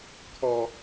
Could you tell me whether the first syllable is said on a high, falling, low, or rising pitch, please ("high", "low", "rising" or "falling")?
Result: low